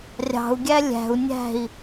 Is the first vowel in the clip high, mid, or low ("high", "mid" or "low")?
low